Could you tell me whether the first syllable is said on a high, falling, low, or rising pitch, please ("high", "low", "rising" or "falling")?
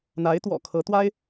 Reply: rising